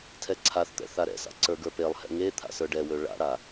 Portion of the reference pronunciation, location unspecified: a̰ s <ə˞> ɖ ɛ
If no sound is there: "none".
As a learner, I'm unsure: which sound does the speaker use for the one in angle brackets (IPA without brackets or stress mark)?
ə˞